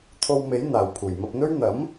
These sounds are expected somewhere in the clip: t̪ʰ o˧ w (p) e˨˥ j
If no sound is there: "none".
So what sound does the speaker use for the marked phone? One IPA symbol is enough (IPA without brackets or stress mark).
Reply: m